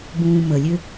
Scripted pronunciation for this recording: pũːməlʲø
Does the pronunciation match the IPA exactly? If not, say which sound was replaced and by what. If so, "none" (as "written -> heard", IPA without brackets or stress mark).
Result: p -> b